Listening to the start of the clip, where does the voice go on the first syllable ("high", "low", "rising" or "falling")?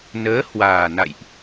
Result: rising